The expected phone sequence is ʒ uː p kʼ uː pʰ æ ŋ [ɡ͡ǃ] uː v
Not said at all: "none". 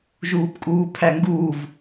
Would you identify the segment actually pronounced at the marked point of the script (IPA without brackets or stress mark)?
ɡ